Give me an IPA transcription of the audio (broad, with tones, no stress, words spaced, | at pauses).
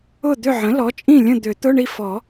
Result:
ʊ˥˨ d̪ʏ˥˨ʕə̃˩˥lɔ˩˥t͡ʃʼĩ˥˨ lʲə̃˥˨d̪ʏ˨˩˦ t̪ʊ˧˥˧ɳi˥˨fɔ˨˩˦